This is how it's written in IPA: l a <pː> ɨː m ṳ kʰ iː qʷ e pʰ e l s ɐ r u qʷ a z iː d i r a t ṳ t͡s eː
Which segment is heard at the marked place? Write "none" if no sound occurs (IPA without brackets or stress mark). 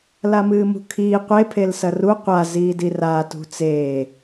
m